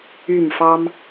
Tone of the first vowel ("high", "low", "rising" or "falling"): falling